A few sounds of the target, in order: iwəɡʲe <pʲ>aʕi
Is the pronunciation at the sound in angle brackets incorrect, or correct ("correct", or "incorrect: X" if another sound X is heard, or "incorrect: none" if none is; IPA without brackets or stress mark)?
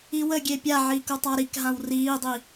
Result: correct